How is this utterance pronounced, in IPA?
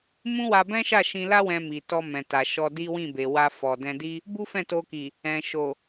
m ũ˦ w a˧ b ɛ̃˦ ʃ a˦˨ ʃ ĩ˧ l a˦ w ɛ̃˧ m i˨ t ɔ˧ m ɛ̃˨ t a˨ ʃ ɔ˧ d i˦ w ĩ˦˨ b e˨ w a˧ f ɔ˨ d ɛ̃˧ d i˦ | b u˦ f ɛ̃˦˨ t o˧ k i˨ | ɛ̃˨ ʃ o˨

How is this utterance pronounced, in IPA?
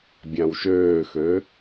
bʲ ã w ʃ øː x ø

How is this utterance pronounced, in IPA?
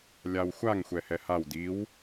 lʲ a w xʷ a ŋ xʷ ɛ h ɛ h a w d i w

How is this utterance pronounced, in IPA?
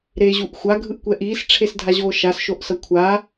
ɾ e ʑ u ʔ xʷ a ɡʱ ɯ ʔ kʷ ɛ ʔ iː s ʈ͡ʂʰ e s dʱ a ʑ oː ʃ a s ʃ o ʔ s ʌ kʷʰ a

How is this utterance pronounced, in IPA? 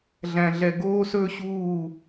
ɮ æ̃˨ ɮ ɛ˨ ɡ oː˦ s ɵ˦ ɕ uː˦˨

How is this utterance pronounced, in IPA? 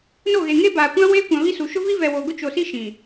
n o˦˨ ɣ e˨ ŋ e˦ b aː˨ kʷ ã˦ w eː˦ kʷ ã˨ β i˦ s u˨ ʃ ʊ˦ v i˦ v ɛ˨ w o˨ ɡ ʊ˦ t͡ʃ o˨ s i˦ ʃ ĩ˨

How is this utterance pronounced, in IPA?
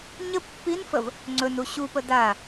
ɲ ə pː i n f ə v | ŋ͡ǀ ɵ n u ɕ u p ə d a

